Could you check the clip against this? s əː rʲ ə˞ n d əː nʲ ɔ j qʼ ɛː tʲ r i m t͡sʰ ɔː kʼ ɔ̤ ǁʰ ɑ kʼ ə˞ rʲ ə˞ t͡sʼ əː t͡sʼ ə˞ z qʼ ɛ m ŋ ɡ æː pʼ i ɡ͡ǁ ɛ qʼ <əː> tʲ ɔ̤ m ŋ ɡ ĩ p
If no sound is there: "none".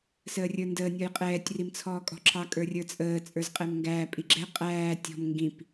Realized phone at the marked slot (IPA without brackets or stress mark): æː